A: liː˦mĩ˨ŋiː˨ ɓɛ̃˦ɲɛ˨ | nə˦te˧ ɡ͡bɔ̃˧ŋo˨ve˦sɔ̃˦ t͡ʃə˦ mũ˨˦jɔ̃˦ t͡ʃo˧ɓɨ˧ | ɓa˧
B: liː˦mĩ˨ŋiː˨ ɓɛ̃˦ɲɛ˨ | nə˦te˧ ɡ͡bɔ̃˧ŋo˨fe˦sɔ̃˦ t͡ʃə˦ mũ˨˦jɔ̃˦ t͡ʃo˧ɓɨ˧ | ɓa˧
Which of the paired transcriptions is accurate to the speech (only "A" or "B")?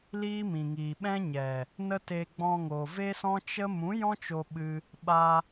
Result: A